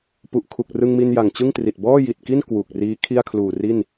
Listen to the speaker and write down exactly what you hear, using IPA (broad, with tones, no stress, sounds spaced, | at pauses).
p u˨˩ ʔ kʰ u˨˩ k̚ r ɯ˧ ŋ m i˧ n j a˨˩ ŋ t͡ɕ ɯ˥˩ ŋ t r i˨˩ t̚ b ɔː˥˩ j i˨˩ t̚ k i˥˩ n k w u˨˩ k̚ r iː˦˥ kʰ i˥˩ a̯ kʰ l uː˨˩ r i˥˩ n